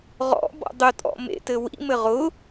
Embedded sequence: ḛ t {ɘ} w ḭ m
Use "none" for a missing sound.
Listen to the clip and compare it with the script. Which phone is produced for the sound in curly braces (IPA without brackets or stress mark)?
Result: ɘ